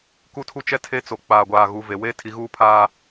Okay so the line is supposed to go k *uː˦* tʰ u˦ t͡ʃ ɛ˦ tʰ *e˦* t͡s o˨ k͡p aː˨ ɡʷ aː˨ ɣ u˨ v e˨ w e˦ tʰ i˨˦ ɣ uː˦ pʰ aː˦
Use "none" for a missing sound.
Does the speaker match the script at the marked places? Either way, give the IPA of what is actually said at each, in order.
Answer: u˦, e˦

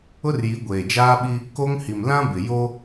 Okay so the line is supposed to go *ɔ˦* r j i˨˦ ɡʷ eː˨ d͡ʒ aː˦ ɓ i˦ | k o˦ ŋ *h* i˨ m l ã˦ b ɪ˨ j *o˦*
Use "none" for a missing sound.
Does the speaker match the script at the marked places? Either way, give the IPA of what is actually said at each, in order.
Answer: ʊ˦, h, o˦

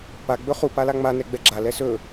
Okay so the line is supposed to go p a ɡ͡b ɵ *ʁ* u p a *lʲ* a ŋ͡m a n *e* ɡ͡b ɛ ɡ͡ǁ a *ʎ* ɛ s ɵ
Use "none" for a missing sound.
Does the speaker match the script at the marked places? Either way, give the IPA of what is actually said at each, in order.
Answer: χ, l, ɛ, l

